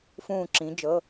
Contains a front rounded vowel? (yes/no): no